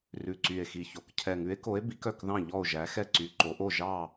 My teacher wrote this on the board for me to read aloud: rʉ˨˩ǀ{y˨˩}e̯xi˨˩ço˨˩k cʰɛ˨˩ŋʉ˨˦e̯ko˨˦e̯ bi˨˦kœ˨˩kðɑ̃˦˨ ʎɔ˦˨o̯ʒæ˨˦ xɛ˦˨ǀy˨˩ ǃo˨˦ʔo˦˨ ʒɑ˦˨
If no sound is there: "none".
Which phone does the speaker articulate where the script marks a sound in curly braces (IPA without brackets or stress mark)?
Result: y˨˩